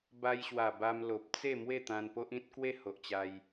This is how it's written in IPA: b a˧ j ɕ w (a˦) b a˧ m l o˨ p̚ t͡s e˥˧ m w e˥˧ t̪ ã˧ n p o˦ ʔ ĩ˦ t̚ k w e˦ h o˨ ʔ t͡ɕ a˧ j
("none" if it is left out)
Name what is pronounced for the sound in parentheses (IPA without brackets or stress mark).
a˨˩